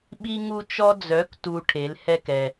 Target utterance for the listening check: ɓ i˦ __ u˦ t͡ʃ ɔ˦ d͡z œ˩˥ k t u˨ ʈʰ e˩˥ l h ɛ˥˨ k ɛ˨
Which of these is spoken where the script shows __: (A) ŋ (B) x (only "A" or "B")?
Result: A